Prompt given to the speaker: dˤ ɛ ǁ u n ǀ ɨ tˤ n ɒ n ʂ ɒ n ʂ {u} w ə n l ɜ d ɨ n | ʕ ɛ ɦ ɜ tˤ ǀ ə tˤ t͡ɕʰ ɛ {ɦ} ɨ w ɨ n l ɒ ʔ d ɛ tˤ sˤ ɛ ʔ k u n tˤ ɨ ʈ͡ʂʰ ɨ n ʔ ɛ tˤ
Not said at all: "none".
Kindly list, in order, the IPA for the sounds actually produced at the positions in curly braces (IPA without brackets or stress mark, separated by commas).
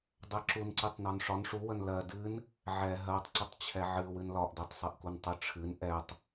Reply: u, ʕ